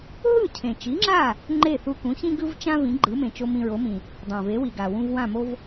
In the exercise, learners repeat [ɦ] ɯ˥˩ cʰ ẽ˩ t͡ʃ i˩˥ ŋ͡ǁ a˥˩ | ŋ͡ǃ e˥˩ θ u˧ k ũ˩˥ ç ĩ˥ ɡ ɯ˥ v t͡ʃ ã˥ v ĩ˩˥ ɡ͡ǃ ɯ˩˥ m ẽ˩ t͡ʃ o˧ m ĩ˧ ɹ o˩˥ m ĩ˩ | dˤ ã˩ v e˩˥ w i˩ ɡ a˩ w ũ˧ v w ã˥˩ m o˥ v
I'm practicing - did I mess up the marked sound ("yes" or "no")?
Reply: no